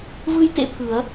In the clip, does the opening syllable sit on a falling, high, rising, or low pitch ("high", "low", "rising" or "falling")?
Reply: high